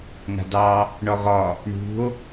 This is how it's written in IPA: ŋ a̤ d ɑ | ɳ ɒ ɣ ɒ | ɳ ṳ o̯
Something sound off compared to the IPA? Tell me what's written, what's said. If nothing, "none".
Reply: none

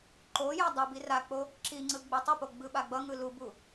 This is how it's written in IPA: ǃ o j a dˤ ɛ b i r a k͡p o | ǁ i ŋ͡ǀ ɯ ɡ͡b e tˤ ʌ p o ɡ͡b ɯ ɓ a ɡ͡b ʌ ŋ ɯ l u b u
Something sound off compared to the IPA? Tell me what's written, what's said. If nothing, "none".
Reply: none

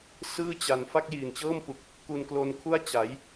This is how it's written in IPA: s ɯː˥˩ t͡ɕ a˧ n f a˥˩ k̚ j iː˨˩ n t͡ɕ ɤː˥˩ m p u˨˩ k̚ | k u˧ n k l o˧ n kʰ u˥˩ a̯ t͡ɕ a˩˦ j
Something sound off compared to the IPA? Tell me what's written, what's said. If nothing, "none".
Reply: none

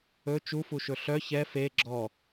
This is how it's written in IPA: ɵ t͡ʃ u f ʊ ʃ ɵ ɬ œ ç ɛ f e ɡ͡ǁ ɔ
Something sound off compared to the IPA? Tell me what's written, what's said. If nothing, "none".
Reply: ʊ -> u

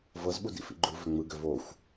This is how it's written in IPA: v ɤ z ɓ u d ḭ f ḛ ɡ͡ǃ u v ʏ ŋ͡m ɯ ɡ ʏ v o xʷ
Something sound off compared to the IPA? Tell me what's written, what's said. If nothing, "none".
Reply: ḛ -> ḭ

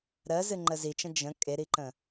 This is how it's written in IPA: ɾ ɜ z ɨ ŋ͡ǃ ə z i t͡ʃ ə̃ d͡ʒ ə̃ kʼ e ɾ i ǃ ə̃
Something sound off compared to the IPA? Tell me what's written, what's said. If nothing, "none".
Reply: none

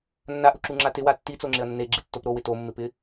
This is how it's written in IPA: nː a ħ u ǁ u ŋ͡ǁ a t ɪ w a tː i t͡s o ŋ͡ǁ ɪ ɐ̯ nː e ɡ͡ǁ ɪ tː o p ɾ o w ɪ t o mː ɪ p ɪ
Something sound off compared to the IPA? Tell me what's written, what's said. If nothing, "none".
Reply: ħ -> ʔ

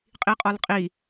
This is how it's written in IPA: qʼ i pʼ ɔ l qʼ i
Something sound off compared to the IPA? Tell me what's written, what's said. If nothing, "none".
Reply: pʼ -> qʼ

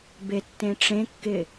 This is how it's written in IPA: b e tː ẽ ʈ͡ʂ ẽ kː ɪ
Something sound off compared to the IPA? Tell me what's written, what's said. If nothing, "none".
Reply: none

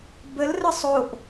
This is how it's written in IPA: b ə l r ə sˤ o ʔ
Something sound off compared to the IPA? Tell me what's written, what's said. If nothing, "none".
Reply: none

